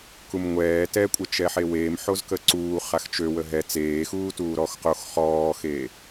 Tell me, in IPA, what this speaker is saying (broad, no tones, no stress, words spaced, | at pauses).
kumŋʷɛː tɛkʷʼə t͡ʃɛħeweːm ħozkəǀuː χaxt͡ʃø wəɦɛ t͡seːxuː tuːɾɔx qox χɔːxe